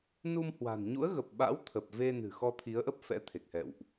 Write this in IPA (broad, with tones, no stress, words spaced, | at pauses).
nu˧mhwa̤˨˩n ɲṵ˧˥ə̯ɣə˨˩p̚ɓa̰˧˥w t̪ʰə˨˩p̚ ve˧nɨ̤˨˩ xɔ˧t̪ʰi˨˦ə̯ʔə˦˥p̚ fɛ̰˧˥ t̪ʰe˨˩k̚hɛ̰˧˨wʔ